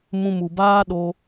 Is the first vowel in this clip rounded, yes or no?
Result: yes